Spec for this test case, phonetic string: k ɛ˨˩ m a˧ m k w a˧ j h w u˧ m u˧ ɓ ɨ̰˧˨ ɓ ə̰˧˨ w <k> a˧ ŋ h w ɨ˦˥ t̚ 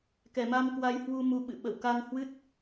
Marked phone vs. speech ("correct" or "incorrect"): correct